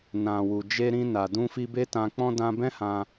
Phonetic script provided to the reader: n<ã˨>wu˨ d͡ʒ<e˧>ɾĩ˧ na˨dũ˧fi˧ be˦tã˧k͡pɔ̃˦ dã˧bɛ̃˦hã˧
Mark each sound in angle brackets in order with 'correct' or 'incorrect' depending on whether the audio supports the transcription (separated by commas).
correct, correct